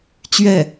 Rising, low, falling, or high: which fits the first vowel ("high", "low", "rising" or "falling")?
falling